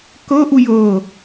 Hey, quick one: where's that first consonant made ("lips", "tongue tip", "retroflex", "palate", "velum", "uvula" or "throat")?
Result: velum